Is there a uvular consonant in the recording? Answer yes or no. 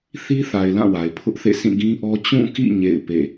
no